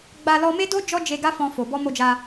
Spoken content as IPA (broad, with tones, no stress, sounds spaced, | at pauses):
ɡ͡b a˧ l ɔ˧ m e˦ d o˦ d͡ʒ ɔ˦ d͡ʒ e˧ ɡ a˦ f ɔ̃˧ f o˨ b ɔ˧ m o˧ d͡ʒ a˧